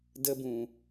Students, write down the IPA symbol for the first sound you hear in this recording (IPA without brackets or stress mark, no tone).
d